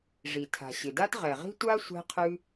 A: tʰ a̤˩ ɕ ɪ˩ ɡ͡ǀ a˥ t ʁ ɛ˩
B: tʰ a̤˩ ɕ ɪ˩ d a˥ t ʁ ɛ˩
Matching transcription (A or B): B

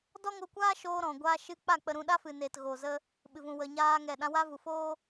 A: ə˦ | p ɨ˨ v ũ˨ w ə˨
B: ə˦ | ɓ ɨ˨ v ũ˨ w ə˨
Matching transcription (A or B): B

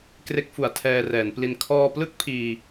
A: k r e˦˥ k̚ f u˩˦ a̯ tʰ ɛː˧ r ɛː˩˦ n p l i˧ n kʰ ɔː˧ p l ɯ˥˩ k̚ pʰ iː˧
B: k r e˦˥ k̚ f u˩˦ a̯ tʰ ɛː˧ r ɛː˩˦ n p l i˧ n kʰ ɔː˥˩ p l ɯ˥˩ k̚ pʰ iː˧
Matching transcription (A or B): A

